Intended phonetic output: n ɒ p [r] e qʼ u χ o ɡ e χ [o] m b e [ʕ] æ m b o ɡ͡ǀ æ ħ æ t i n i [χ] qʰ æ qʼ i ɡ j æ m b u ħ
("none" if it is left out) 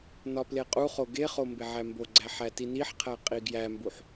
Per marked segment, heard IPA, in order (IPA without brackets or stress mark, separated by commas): l, o, ʕ, ħ